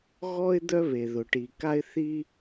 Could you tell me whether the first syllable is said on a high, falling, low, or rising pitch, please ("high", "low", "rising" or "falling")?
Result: high